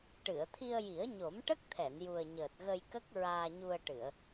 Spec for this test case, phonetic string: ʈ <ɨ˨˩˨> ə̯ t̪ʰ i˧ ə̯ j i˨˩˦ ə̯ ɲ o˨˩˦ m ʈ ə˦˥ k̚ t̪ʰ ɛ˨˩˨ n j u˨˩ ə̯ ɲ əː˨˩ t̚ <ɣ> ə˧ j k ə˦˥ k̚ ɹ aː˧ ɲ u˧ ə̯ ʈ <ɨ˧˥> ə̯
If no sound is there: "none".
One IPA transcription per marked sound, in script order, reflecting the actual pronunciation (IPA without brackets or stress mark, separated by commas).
ɨ˨˩˨, ɣ, ɨ˨˩˨